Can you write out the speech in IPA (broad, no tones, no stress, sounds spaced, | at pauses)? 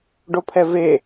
ɖ o pʰ ɛ v e